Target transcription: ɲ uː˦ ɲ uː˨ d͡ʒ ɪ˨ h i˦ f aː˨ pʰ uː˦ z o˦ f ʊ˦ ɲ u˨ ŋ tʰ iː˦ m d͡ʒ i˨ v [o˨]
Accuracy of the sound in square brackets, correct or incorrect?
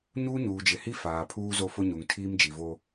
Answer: incorrect